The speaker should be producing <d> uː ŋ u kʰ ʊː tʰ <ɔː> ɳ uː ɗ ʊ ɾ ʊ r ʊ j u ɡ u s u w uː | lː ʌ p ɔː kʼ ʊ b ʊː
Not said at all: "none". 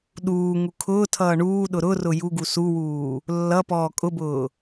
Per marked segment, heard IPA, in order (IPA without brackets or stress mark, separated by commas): ɗ, ʌː